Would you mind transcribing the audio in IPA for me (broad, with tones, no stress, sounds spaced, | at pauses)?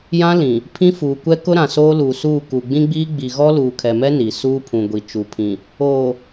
j ã˦ l ĩ˨ | pʰ ĩ˦ f uː˨ kʷ ɛ˦ k ʊ˦ ɾ ã˨ s oː˦ l uː˨ s uː˦˨ k u˨ ɡ͡b ĩ˦ ɡ͡b iː˦ ɡ͡b i˨ ɣ ɔ˦ l uː˨ kʰ ɛ˨ m ɛ˦ n i˨ s uː˦ pʰ ũ˨ ɡʷ i˨ t͡ʃ u˨ pʰ ĩ˨ | oː˨